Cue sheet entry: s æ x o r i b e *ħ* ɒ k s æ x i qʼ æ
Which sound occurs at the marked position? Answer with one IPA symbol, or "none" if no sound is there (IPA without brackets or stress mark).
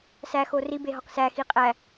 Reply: ɦ